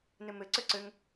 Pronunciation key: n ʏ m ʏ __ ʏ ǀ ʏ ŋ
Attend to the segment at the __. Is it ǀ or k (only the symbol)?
ǀ